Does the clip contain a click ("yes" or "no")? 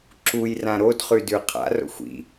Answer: yes